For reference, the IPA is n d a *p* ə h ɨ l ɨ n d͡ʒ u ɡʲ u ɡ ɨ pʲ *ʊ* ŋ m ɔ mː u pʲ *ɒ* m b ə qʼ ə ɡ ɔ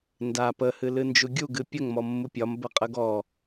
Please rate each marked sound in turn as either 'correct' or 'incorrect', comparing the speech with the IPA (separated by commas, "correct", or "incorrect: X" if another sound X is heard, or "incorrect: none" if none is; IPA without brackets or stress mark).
correct, incorrect: ə, correct